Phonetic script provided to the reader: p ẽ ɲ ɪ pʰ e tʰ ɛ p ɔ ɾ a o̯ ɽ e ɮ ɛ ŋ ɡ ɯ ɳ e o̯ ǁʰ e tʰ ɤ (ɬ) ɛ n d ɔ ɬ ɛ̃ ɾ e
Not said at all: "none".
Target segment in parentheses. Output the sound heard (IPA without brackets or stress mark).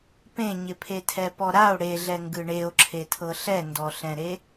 ɬ